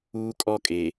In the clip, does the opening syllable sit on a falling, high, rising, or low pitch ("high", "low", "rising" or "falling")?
high